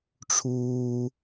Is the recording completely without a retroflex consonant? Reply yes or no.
no